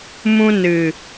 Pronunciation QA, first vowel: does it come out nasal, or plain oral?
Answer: nasal